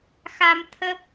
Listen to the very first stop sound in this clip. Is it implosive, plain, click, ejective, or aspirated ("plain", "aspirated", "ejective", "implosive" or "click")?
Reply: aspirated